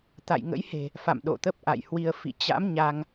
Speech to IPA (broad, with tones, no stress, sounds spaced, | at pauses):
t̪ a̰˧˨ j ŋ ə̰˧˥ j h e̤˨˩ | f a̰˧˨ m ɗ o̰˧˨ t̪ ə˦˥ p̚ ʔ a̰˧˨ j h w i˧ ə̯ f ḭ˧˨ t͡ɕ a̰˧˥ m ɲ a˧ ŋ